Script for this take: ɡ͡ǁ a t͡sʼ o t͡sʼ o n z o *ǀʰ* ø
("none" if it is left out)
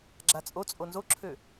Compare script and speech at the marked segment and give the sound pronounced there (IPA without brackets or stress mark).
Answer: ǁʰ